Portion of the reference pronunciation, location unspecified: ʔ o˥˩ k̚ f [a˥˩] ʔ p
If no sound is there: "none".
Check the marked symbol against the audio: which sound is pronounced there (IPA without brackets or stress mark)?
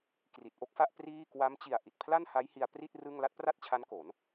a˥˩